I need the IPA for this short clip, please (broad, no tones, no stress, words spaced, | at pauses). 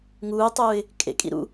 ŋuːtˤuːɪ̯ | kʼḛkʼḭ ɾṵ